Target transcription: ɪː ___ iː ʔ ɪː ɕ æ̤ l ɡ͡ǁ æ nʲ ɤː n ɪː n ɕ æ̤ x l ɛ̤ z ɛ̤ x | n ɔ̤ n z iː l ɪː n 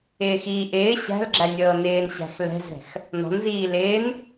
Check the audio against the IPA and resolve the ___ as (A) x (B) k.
A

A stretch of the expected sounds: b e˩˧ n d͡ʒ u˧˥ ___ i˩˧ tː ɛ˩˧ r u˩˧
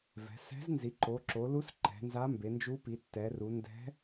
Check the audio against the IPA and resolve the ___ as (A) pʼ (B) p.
B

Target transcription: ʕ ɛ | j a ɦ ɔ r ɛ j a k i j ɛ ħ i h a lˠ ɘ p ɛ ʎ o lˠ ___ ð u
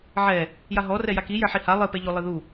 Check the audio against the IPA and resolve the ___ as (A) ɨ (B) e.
A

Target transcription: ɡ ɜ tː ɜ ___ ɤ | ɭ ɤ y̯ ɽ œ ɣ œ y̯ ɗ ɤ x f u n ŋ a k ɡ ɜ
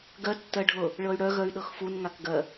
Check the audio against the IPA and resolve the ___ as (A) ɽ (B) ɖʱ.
B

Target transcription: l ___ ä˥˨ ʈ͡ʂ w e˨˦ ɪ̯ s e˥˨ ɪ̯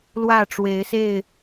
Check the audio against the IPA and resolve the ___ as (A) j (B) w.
B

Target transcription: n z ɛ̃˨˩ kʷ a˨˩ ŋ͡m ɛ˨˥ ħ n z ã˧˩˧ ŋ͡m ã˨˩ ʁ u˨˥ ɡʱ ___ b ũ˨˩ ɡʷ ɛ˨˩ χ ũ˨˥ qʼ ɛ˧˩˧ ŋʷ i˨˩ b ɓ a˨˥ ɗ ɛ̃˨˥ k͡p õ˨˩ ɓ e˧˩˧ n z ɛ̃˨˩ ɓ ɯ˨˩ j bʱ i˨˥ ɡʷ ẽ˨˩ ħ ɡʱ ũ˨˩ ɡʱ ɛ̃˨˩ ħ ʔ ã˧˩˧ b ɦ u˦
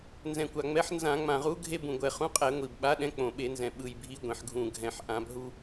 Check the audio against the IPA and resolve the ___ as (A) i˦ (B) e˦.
B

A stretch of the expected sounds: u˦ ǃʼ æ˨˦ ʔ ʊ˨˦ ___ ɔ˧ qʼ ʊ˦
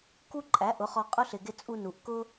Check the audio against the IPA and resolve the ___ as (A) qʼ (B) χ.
B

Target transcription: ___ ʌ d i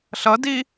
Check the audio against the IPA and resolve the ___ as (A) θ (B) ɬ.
B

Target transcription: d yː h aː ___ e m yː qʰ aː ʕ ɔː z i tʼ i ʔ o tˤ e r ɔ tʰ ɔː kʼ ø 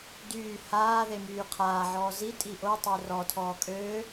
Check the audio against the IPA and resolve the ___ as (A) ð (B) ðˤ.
A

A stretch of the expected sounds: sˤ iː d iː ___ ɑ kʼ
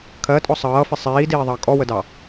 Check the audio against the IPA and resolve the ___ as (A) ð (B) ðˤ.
B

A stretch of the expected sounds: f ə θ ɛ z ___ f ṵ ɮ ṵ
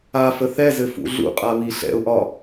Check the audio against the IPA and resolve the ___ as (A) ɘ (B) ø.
A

